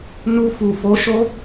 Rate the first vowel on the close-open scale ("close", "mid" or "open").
close